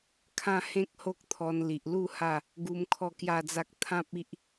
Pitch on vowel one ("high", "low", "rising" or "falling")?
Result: falling